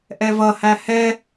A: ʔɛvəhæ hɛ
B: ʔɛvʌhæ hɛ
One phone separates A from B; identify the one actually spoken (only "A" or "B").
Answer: B